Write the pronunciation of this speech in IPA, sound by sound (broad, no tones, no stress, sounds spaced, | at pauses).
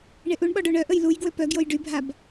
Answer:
ɳ e ʔ u ɳ ɓ ɔ ɖ o ɳ œ ʔ ə j l u j ɡ w ø p œ ɡ j o j ɖ y bʱ a b